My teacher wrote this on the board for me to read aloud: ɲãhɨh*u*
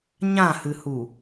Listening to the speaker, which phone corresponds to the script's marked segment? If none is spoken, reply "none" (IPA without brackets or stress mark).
u